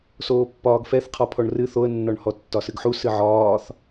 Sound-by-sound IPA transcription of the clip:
s oː pː ɒː ɡ f ɛ θ qʰ ɒ pʰ ɔ ɳ r ɨ θ o ə̯ nː ɒ ɳ h ɔ tː ɒ s ɨ ɡ ħ u s ɨ ʕ ɒː θ

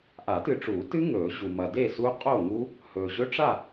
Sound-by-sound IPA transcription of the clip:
ʔ a˨˩˦ t ɨ˨ ʈ͡ʂ uː˨˩˦ t ɨ˦˥ ŋ ɵː˨˩˦ ʑ u˨ m ɐ˨ d e˥˨ s u˦˥ qʼ o˥˨ ŋ u˦˥ | h ɵː˨ ʑ ɵ˦˥ ʈ͡ʂ a˥˨

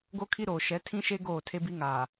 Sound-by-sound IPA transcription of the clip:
ɡ o˦ kʰ i˦ ɾ oː˨ ʃ ɛ˨˦ tʰ ĩ˦ ʃ e˦ ɡ oː˦˨ tʰ e˦ b i˦ ŋ aː˨

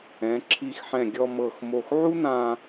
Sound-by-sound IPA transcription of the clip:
ɛ̃˩˧ ǁʰ i˧˩ x ħ ɛ̃˧˩ ɡʲ ɔ˧ m ɤ˧˩ x m o˧˩ x ʕ u˥ n ã˧

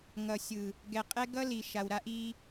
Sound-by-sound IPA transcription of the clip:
ŋ ʌ˨ sʲ ɯ˨ | ɡ ɛ˨ qʼ ɛ˦ ɡ ʌ˦ l i˨ ʃ a˨ w ɾ a˦ ʔ i˦

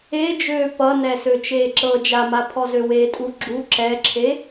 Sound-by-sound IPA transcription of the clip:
e d͡ʒ øː p ʌ n ɛ s ø t͡ʃ eː ǁ ɤ d͡ʒ a m a pʰ ɔ z ø w eː tʼ u ɡ͡ǁ u ǁ ɛ ǁʰ e

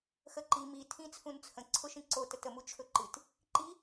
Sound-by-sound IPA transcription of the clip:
x ə ǃ i m i tʰ ĩ t͡sʰ ũ n t͡sʰ ə̃ ǀʰ ʊ ʃ ĩ ǀ o t ə t ə m u t͡ʃʰ ɵ ǃ ɨ t | ǃ i

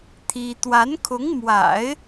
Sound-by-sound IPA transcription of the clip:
t̪ʰ i˥ t̪ w a˧˥ n kʰ ʊ˧˥ ŋ m w a̰˨˩˦ ɪ̯

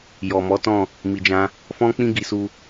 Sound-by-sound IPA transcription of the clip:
j ɔ˨ m ɔ˨˦ t ɔ̃˦˨ | m i˨ d͡ʒ ã˧ | f ɔ̃˦ k͡p ĩ˦ ɡ i˧ s u˧

